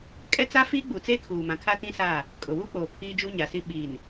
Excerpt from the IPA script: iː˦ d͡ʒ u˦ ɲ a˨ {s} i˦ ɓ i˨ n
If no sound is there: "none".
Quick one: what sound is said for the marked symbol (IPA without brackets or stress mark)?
s